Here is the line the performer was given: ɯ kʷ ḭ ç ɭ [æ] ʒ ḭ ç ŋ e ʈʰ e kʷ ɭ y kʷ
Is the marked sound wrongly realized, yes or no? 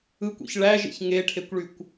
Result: no